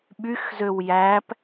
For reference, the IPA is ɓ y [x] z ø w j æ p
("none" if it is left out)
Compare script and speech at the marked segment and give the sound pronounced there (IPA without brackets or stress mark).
x